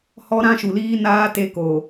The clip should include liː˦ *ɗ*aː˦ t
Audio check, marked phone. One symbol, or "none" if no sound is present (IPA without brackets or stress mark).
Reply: n